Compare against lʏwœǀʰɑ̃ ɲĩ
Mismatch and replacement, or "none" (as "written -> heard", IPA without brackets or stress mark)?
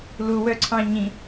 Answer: ʏ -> u